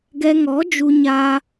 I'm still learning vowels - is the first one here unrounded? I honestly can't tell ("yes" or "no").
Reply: yes